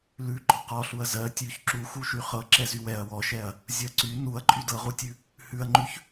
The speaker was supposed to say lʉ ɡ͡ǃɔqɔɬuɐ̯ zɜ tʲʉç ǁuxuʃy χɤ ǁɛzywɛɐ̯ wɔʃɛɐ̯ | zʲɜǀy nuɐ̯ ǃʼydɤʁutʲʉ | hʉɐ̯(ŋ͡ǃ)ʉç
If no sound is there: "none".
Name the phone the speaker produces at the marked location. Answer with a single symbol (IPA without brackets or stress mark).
ŋ͡ǃ